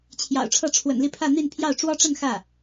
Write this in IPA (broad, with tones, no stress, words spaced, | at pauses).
t͡ɕʰjɑ̰˨˩ʊ̯ʈ͡ʂʰɤ˥˩ ʈ͡ʂʰwə̰˨˩nli˥˧pʰä˥˧ n̪i˥˧n pʰjɑ˥˩ʊ̯ ʈ͡ʂwɔ˥ʈ͡ʂə˥˧n xä˥˩